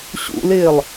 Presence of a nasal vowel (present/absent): absent